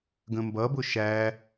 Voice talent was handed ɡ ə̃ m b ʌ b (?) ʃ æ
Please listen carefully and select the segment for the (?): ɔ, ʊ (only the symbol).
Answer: ʊ